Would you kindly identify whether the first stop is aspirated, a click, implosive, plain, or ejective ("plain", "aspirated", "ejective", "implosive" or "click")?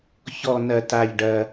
plain